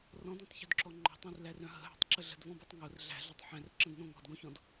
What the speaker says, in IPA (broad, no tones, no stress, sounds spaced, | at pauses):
r ɔ̃ d õ tˤ ç o̤ d ǁ ɔ ŋ͡ǃ ɔ̤ tˤ æ̃ r l æ r œ̃ ɦ ə̤ ɦ æ̤ tˤ ǁ ə ɮ ə̤ d v ɔ̃ b œ tˤ ŋ o r ɮ æ̤ ɮ o tˤ ħ æ̃ r ǁ ə̃ d n õ ŋ ɔ̤ d ɡ õ ç ɔ̃ d